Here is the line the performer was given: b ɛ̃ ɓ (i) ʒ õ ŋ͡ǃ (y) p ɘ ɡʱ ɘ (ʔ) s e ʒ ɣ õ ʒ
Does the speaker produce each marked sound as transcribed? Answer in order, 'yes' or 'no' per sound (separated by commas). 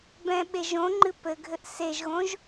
no, no, yes